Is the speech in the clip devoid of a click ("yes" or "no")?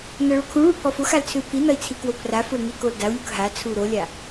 yes